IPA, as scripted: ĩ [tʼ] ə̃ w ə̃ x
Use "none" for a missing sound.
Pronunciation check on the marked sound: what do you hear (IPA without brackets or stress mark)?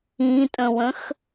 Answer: tʼ